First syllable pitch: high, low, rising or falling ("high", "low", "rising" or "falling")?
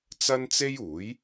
high